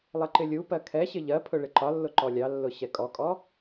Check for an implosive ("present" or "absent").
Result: absent